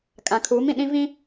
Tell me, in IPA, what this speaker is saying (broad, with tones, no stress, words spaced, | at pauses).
kʼã˨kʰuː˨˦mĩ˨ ɗĩ˦vĩ˦